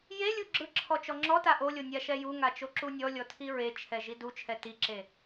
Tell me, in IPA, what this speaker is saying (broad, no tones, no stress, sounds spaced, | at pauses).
j e lʲ u ɡ͡ǁ ɯ ǁʰ ɔ t͡ʃ ɔ ŋ͡ǁ ɔ t a ʔ o lʲ o nʲ a ʃ ɛ j u ŋ a t͡ʃ o ǁ u nʲ ɔ lʲ ɔ tʰ i ɹ e t͡ʃʰ ɛ ʒ i d u t͡ʃʰ ɛ t i ǁ e